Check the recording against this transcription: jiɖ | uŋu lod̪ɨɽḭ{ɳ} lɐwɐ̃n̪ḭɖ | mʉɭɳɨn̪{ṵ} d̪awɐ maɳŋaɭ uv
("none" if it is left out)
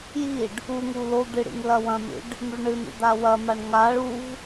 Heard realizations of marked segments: ŋ, ṵ

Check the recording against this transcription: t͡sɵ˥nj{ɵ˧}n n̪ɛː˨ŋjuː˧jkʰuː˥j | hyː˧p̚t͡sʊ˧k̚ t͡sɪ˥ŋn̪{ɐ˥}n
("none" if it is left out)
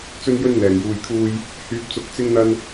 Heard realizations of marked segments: ɵ˥, ɐ˥

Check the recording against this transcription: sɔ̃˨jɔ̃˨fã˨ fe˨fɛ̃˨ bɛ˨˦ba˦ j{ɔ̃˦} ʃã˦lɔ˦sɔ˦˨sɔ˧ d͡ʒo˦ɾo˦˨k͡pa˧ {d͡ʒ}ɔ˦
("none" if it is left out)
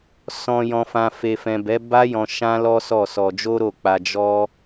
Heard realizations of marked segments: ɔ̃˧, d͡ʒ

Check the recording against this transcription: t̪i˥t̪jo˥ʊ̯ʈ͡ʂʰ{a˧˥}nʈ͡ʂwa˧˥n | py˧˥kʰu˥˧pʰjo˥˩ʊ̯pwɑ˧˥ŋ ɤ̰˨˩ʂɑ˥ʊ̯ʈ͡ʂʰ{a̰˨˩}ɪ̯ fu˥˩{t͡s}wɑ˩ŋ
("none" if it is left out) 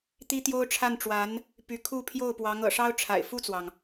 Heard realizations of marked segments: a˥˩, a̰˨˩, t͡s

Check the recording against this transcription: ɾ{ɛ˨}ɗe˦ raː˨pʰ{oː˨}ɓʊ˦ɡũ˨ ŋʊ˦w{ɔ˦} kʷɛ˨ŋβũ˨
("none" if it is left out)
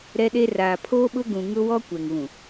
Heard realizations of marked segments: ɛ˦, oː˦, ɔ˦

